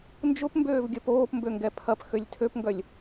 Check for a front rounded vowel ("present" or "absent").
present